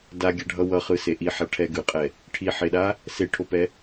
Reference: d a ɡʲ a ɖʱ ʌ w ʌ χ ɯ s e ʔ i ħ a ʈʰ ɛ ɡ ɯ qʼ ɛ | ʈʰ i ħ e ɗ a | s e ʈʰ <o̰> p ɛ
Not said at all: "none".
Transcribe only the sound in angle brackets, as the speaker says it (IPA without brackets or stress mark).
o